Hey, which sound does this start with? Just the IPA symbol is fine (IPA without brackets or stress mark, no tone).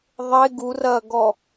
ðˤ